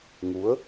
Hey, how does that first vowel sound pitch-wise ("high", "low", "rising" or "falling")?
rising